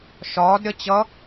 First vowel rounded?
yes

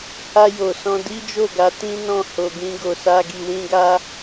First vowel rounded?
no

